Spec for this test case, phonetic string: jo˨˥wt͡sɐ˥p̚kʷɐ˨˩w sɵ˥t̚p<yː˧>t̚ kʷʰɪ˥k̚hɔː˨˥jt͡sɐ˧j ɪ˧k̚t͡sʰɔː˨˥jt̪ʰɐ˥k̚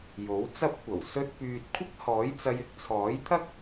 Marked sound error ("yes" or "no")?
no